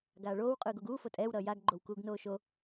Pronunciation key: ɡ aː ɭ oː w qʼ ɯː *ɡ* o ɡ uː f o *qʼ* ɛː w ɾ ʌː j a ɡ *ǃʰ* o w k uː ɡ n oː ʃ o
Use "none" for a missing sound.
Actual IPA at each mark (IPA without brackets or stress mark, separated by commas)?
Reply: ɡ, tʼ, ɡ͡ǃ